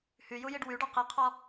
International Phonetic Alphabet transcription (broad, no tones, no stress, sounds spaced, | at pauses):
h y j u j i ɖ w y ɖ ɔ q i qʰ ɔ